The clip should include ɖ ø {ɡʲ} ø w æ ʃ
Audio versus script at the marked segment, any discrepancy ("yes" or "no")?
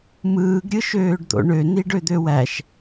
yes